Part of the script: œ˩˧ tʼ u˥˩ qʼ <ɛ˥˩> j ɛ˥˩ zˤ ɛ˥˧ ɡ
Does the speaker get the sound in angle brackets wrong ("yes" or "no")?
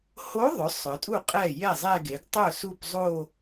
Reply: no